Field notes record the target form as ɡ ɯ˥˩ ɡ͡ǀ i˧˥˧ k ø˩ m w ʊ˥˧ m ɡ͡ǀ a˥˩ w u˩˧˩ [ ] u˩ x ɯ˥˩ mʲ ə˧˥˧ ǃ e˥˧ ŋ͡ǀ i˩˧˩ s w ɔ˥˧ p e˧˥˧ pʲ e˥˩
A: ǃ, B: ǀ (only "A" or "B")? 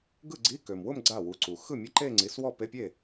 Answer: B